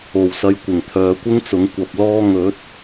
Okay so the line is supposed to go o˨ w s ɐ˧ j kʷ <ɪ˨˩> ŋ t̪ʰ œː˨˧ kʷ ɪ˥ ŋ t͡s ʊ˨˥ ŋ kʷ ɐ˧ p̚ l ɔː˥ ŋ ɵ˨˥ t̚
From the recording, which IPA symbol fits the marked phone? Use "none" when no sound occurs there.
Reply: ɪ˨˩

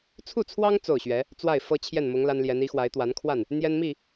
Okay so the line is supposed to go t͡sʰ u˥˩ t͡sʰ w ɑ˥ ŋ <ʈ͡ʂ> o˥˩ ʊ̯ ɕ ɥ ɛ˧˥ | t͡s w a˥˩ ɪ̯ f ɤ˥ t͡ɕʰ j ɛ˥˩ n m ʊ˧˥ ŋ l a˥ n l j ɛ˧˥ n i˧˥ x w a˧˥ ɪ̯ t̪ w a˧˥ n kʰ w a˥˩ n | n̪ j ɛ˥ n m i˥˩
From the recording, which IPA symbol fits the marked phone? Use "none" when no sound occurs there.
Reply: t͡s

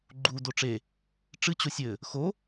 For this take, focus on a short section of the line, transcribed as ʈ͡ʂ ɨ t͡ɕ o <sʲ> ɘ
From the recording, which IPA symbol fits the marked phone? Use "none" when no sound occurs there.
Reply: sʲ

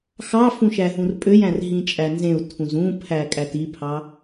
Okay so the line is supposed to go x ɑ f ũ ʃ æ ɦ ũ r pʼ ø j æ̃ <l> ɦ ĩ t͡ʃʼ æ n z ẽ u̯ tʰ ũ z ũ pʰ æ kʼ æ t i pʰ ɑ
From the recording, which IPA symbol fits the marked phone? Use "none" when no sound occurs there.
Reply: r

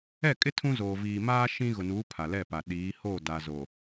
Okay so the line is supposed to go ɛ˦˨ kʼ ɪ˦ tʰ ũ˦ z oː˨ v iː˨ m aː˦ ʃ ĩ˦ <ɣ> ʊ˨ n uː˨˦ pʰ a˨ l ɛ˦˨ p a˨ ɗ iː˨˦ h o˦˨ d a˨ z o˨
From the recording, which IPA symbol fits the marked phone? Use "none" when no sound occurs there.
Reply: ɣ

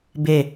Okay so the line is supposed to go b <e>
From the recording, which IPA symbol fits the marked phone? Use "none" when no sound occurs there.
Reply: e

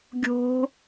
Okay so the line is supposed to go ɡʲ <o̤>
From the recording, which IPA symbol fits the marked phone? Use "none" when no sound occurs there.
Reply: o̤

